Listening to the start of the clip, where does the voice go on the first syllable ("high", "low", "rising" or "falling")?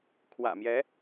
low